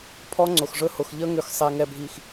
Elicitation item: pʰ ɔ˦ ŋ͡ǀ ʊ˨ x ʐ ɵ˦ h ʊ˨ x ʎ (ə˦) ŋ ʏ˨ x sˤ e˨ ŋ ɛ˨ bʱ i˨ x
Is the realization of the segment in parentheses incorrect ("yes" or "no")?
no